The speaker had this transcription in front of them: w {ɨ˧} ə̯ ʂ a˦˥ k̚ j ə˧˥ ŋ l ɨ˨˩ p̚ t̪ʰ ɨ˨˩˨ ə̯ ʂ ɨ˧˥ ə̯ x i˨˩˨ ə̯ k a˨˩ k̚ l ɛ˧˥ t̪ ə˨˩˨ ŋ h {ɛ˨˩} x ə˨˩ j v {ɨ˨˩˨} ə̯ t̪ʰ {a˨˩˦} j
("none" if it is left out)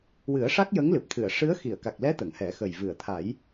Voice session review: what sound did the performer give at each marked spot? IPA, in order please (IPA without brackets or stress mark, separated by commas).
ɨ˨˩˦, ɛ˨˩˦, ɨ˨˩˨, a˨˩˦